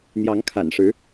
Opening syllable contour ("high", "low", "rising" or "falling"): rising